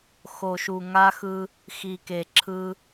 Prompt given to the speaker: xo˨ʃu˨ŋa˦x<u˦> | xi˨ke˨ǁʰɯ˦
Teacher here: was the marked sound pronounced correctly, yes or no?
no